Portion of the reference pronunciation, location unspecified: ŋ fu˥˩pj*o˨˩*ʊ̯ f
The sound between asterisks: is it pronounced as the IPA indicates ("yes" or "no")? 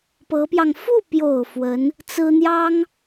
yes